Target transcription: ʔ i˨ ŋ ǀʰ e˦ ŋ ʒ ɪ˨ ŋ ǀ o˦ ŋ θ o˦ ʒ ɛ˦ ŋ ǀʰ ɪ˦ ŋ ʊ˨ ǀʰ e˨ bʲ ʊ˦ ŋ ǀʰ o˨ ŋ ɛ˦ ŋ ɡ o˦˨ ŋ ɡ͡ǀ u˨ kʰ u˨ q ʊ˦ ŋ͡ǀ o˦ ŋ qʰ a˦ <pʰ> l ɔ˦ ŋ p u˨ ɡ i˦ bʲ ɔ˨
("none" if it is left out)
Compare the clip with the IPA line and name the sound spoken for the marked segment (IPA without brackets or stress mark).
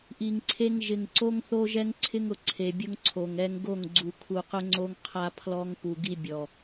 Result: pʰ